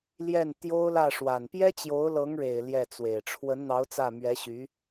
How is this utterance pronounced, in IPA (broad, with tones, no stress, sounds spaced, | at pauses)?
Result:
l j ɛ˥˩ n t̪ j o˥ ʊ̯ l ä˥˩ ʂ w a˨˩ n p j ɛ˥ t͡ɕ j o˧˥ ʊ̯ l ɤ˧˥ ŋ ɻ e˨˩ ɪ̯ l j ɛ˥˩ t͡s w e˨˩ ɪ̯ ʈ͡ʂʰ w ə˧˥ n n̪ ɑ˧˥ ʊ̯ t͡s ä˥˩ m ɥ ɛ˧˥ ɕ y˧˥